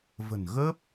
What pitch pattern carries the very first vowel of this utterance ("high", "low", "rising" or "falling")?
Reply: low